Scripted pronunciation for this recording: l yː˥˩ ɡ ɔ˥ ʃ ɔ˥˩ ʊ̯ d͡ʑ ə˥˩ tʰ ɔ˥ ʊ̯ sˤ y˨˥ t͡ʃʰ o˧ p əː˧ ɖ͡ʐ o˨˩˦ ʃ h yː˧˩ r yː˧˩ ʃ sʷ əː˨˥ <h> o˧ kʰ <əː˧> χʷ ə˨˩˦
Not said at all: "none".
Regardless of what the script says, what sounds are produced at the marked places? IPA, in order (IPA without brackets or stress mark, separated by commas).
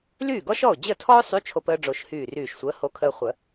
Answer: h, əː˧